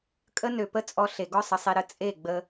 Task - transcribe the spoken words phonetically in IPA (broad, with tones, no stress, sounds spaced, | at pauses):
kʼ ə˦ n ø˨ p ə˦ t͡sʼ ɔ˧ ɬ e˨ ɡ ɔ˦ sˤ ə˨ sˤ e˧ ɾ ə˧ t͡sʼ e˦˨ ɡ͡b ə˧